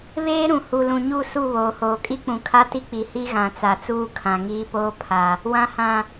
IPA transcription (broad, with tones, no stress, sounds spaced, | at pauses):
β eː˦ ɾ ũ˨ h u˨ l ũ˨ ɲ u˦˨ s u˦˨ β oː˨ h oː˨ kʼ i˦ k͡p ũ˨ kʰ a˦ t i˦ k͡p i˨ h i˦ ɣ ã˨ t͡s a˨ t͡s uː˦ kʰ ã˨ ŋ iː˦ p oː˦ pʰ a˨ | w ã˨ h ã˨